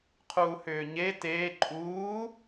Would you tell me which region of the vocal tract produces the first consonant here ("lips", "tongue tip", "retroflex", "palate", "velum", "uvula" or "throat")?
uvula